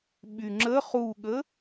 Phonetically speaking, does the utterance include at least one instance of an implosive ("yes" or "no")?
yes